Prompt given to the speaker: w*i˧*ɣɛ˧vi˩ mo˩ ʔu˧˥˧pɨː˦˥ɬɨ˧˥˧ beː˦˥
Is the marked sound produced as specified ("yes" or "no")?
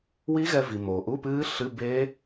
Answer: no